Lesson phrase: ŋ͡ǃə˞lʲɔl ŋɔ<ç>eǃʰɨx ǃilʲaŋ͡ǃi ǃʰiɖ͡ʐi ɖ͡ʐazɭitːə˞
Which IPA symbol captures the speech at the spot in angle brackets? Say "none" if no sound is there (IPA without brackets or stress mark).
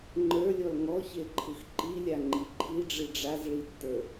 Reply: ç